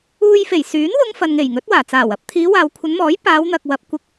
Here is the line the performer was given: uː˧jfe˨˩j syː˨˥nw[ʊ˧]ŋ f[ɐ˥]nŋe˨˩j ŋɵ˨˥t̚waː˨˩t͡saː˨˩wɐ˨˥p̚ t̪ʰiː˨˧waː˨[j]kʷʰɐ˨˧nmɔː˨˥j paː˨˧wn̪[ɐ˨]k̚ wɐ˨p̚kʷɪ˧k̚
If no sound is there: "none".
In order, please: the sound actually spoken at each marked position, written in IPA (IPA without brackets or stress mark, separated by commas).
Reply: ʊ˧, ɐ˨, w, ɐ˨